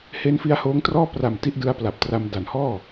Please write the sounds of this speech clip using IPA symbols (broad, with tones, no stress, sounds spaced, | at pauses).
h e˦˥ n f i˦˥ a̯ h oː˦˥ ŋ t r ɔː˥˩ p r a˨˩ m t i˥˩ ʔ d ɯ˦˥ a̯ p l a˨˩ p̚ t r a˧ m d a˨˩ n h ɔː˥˩